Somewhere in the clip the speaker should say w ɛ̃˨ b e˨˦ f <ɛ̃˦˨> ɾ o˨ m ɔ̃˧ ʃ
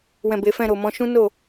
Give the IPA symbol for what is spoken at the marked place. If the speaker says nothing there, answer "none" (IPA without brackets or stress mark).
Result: ɛ̃˦˨